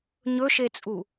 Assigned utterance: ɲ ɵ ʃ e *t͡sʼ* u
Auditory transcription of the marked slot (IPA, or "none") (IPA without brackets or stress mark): t͡sʼ